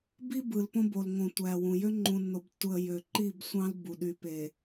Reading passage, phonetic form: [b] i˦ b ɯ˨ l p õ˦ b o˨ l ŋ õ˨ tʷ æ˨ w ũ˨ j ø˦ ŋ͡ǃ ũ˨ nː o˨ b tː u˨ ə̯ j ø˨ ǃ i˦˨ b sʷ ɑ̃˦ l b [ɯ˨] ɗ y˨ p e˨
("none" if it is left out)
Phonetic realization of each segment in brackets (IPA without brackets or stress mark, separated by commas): b, u˨